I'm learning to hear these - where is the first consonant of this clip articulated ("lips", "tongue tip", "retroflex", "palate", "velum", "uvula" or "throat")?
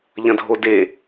palate